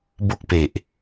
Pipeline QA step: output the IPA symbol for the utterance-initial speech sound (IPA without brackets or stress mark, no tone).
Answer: b